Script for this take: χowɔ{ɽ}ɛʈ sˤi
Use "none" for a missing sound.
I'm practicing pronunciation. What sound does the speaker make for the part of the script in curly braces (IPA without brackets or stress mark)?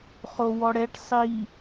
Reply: ɽ